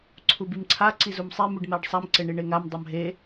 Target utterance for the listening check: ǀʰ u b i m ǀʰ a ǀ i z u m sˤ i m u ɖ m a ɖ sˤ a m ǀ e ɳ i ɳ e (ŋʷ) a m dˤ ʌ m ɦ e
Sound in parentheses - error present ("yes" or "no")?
yes